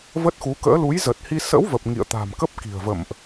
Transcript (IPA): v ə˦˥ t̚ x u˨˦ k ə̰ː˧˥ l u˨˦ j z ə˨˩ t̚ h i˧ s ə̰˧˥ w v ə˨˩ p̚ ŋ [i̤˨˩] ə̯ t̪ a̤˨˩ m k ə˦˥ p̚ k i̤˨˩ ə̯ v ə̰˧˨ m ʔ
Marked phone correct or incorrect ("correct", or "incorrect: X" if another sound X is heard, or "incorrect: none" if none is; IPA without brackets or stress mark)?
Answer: incorrect: ḭ˧˨